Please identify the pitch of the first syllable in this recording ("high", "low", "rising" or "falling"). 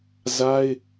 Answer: high